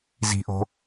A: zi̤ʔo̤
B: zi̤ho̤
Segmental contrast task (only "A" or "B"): A